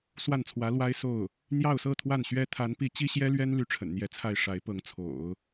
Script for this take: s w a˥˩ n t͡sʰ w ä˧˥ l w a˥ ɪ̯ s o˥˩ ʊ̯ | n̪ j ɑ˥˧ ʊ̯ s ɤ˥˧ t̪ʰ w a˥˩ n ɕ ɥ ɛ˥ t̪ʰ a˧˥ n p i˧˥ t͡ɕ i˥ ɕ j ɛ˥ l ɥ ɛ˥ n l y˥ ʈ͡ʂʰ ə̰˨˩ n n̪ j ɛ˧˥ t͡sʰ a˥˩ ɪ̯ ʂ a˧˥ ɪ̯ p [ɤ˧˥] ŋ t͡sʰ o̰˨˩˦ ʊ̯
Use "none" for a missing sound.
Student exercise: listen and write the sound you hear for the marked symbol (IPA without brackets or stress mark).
ɤ˧˥